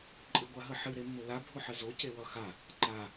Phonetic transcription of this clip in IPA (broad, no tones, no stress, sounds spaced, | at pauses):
ǃʼ ɨ ɡʷ a ɦ ə ħ ɨ ɾ e mː ʊ l a bʱ ʊ ħ ə z o c e w ʌ x a | ǃ a